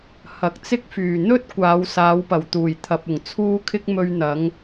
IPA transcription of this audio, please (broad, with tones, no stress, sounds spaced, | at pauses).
h ɐ˨ k̚ t͡s ɪ˥ k̚ f yː˨˩ n̪ ɵ˥ t̚ kʷ aː˨˥ w s aː˨˥ w p ɐ˨˩ w t̪ uː˨˩ j t̪ʰ ɐ˨ p̚ ʊ˨˩ ŋ t͡sʰ uː˥ kʰ ɪ˥ k̚ m ɵ˧ ɥ n̪ ɐ˨˥ ŋ